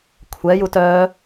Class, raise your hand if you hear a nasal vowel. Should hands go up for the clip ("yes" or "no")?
no